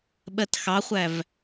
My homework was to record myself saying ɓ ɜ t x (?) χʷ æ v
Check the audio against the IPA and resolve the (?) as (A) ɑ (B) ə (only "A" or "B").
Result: A